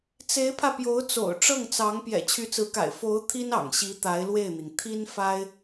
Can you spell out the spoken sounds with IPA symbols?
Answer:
t͡se˧˥ɪ̯pʰä˧ pjo˧˥ʊ̯t͡so̰˨˩ʊ̯ ʈ͡ʂɤ˥˩ŋt͡sɑ˧˥ŋ pjɛ̰˨˩t͡ɕʰy˧˥t͡sɹ̩˧˥ka̰˨˩ɪ̯ fo˧˥ʊ̯ t̪ʰi˥nɑ̰˨˩ŋɕi˧˥ t̪a˧˥ɪ̯lwe˥˩ɪ̯n̪i˩ŋ t̪ʰi˥nfa˥ɪ̯

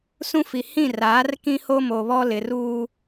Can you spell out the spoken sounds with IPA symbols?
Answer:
sũ˦fi˨ hĩ˦˨raː˨˦r kĩ˦ho˦mo˨βɔ˦ lɪ˨ruː˦

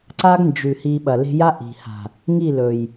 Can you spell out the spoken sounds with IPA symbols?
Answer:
ǀa˦ɡnd͡ʒʉ˨ hi˧ɓɐ˨le̤˦ ja˦ʔi̤˨ha̤˨ | ŋi˦˨lɵ˨j

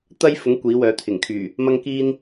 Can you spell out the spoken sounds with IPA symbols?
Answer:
t̪ɐ˥jfʊ˨˥ŋ kʷiː˨˥wœː˨˧t̪ʰɪ˨˩ŋkʰyː˨˩ | mɐ˥ŋkiː˥n

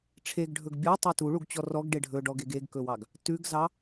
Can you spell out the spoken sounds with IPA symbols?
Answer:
ʈ͡ʂʰeɡɖʱɵɡ bʲɔtˤe tuɭuɡt͡ɕɔ rɔɡɖe ɖʱɵɖɔɡeɡ eɡkɵwɑɡ | tʉɡzɑ

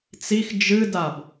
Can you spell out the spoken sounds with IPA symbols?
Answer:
t͡six d͡ʒɨdab

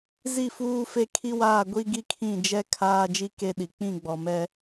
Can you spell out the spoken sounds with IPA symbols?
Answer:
zi˦˨fuː˦fe˦ kʰi˦waː˦˨ ɡʷi˦ɡi˦kʰĩ˦˨d͡ʒɛ˦ kʰaː˦d͡ʒi˦ ke˦ɗi˨ k͡pĩ˦˨ɡ͡bɔ˨mɛ˦

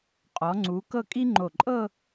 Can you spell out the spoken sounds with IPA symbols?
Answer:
qʼɔ˩˧ŋ͡ǀu˩˧ kɤ˥˧kʼi˥ŋ͡ǃo˧˩ ǃʼɤ˥˧

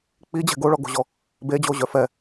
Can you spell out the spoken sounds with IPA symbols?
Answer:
k͡pid͡ʑɛ̤ ɡoɭɔɡo̤ʑɔ | bed͡ʑoʑœ fɛ

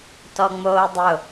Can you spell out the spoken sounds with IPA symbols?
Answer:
tɔŋ͡moːdˤʊ

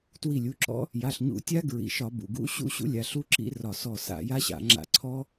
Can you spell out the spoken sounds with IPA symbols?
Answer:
twi˧˩lʲu˩˧˩ǁɔ̰˦˥ | ja˩˧˩ɬɲṵ˧˩˧ tʲa˦˥ɡɹḭ˩˧˩ʃɒ˧˩˧ bṵ˩˧˩ɡṵ˦˥ ɕṵ˦˥ɕṵ˦˥lʲa˩˧˩ ɬu˦˥ ǁḭ˦˥rɒ˧˩ sɔ˧˩ sa̰˧˩˧ja˦˥ɕa̰˧˩˧ ŋ͡ǁa̰˧˩˧ǀʰɔ˦˥

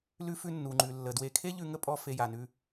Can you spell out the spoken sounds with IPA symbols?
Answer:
lʉ˦fʉ˦ nːu˩ŋ͡ǃʉ˩ lːə˩dwe˨kʰe˥ ʎʉ˦ŋə˥ pʼɔ˦fe˨ja˩nʉ˨

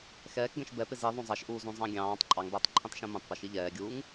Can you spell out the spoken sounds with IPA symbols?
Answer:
xɛːkɡɛ̃ʃ bɛpɪz iðˤũ zˤɑʃʔuːzũzˤɑ̃ ɡʲɑ̃ːtˤ ǃʼɑŋbɛːtˤǃʰĩtˤʃɛ̃ mũtˤpʌʃi ʎɛːɡʲuːŋ

